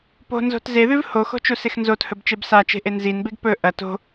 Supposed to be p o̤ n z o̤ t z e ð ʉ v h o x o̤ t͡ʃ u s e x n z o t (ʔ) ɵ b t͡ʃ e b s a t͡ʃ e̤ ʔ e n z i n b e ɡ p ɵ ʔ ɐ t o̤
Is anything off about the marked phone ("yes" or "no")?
yes